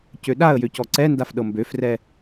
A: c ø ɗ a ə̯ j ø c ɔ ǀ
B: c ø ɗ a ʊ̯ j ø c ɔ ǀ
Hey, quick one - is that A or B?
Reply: A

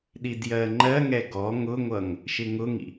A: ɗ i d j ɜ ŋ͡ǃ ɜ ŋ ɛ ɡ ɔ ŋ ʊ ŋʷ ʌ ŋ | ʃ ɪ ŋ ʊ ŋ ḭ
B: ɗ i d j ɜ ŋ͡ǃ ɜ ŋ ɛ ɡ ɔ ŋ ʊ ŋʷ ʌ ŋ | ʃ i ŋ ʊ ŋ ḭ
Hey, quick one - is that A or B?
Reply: A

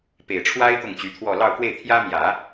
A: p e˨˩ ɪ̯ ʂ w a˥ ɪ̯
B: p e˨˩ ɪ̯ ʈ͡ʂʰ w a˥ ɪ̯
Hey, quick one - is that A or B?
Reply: B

